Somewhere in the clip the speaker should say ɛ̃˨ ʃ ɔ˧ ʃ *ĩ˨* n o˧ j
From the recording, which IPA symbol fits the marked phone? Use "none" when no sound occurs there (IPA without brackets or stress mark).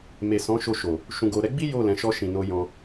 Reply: ĩ˨